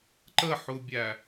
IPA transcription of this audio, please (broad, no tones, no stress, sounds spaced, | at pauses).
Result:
ǃ ə ħ u bʲ æ